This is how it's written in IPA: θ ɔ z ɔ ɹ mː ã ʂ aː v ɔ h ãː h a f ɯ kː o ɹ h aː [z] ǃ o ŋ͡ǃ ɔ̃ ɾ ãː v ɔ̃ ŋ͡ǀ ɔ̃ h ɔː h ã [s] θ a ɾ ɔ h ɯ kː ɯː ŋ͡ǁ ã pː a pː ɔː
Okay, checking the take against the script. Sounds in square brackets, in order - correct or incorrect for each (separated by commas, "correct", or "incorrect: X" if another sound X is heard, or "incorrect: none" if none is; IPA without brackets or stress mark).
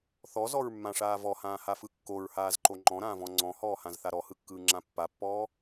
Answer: correct, incorrect: z